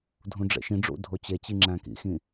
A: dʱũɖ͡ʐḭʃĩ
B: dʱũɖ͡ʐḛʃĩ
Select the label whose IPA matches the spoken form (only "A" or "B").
B